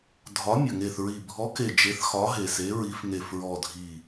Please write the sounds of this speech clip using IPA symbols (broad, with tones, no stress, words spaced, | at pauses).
dʱɒ˨˥ mʲə˨˩ ŋe˨˩θɹi˨˩ bʱɔ˨˥ke˨˩ d͡ʒe˨˥θxɒ˨˥ ɦe˨˩se˨˥ɹi˨˥f ŋe˨˩fɹɔ˨˩dʱi˨˩